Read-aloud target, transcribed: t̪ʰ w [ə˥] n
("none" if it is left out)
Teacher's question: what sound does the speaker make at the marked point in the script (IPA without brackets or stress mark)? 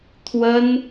ə˥